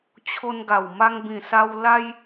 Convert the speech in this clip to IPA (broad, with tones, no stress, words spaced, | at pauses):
t͡ɕʰo˧nɡa˨˩w ma˧ŋbĩ˨˩ sa˧w la˦j